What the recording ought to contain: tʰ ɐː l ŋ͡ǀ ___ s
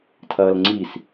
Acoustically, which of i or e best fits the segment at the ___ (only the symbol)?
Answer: i